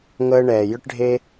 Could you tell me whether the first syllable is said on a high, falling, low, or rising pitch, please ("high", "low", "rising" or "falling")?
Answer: high